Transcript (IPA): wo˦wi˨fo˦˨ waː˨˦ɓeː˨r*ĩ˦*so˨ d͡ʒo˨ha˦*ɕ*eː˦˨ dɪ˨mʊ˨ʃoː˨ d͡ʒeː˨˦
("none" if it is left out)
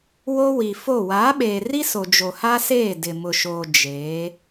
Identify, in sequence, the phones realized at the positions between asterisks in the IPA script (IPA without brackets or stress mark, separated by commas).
i˦, s